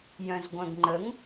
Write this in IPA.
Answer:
j œ̃ z ɡʷ œ̃ ɡ ŋ͡ǃ ə ŋ

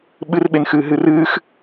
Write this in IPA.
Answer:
ɓ ɨ r ɓ e n x ɨː ɦ ɨ r ɨː x

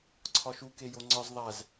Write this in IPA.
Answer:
ǀʰ ɒ ʃ u k e j o ŋ͡ǀ ɒ z ðˤ æ z

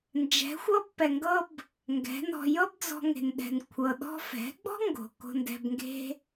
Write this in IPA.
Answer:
n d͡ʒ ɛ̤˨˦ xʷ ɤ˦ b p ɛ˨ ŋ ɡ ɤ˦ b | ŋ ɡ ɛ̤˨˦ n ɔ̤˧ j ɤ˦ b d͡z ɔ̤˧ ŋ e̤˨ n ɗ ɛ̤˨ n kʷʰ ɤ˨ ɗ ɔ̤˧ f ɛ̤˨˦ ɡ͡b ɔ̤˦ ŋ ɡ o̤˨ k o̤˧ n d ɛ̤˧ b ŋ ɡ e̤˦

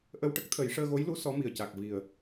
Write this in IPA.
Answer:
ʔ ə˧ w ʈ ə˦˥ k̚ t̪ʰ ə˨˩˦ j ʂ əː˧ ɣ o˧˥ j l u˧˥ s ɔ˧˥ m i˨˩ ə̯ c a˨˩ k̚ v i˨˩ ə̯

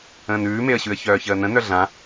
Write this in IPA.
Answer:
ə̃ː n ʉː m e ə̯ ɕ ʉ ə̯ ç œː ç əː n ə̃ n œ ɮ ã

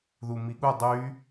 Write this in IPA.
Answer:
ð u m i ɠ u dˤ y

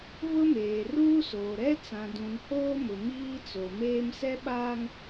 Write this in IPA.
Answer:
β ʊ˦ m eː˨ r uː˦ s oː˨ ɾ ɛ˦ t͡s ã˨ d ũ˨ n h oː˦ m ʊ˨ m iː˦ t͡s o˨ m eː˦ m s ɛ˦ ɓ a˦ ŋ

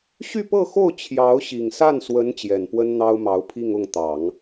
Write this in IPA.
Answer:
ɕ y˥˧ p ɤ˥˧ x o˥˩ ʊ̯ t͡ɕʰ j ɑ˧˥ ʊ̯ ɕ i˨˩ ŋ s a˥˩ n s w ə˧˥ n t͡ɕ j ɛ˨˩ n p w ə˥ n n̪ ɑ˥ ʊ̯ m ɑ˧˥ ʊ̯ pʰ i˥˧ ŋ ʊ˥˩ ŋ t̪ ɑ˨˩˦ ŋ

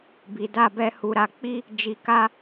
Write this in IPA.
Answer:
b i˧ d a˦ b ɛ˦ h u˧ ɾ a˧ k͡p i˧ | d͡ʒ i˧ k a˦

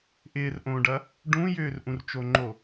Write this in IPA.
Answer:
ʔ ɪː r ʔ õː ɖ ɐ | ɖ ũ j ʏː r ʔ ũ r t͡ʃ o ŋ͡ǃ o

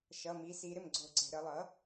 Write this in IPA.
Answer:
ʃ ʌ˩˧˩ m i˩˧ s i˩˧ ɾ ɪ˥˩ m ɡ͡ǀ o˧˩˧ ǀ ɛ̤˩˧ ɾ ə˧˩˧ lˠ ʌ˩˥

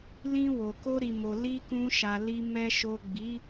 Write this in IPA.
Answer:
l ĩ˧ w o˨ k o˧ ɾ i˨ m o˨ l i˧ k ũ˧ ʃ a˨ l i˨ m ɛ˨ ʃ o˨ ɡ͡b i˨˦

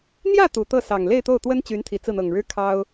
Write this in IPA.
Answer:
n̪ j ä˥˩ t̪ u˨˩ t̪ ɤ˥˩ s ɑ˨˩ ŋ l e˥˧ ɪ̯ t̪ o˥˩ ʊ̯ t̪ w ə˥ n t͡ɕ y˧˥ n t̪ʰ i˨˩ t͡s ɹ̩˥˩ n̪ ɤ˨˩ ŋ ɻ ɻ̩˥ kʰ ɑ˥ ʊ̯

